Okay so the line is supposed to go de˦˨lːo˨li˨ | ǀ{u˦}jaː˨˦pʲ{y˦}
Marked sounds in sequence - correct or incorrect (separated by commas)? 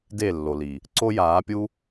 incorrect, incorrect